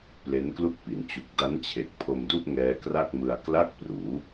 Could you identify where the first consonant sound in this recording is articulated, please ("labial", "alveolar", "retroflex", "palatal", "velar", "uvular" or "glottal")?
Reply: labial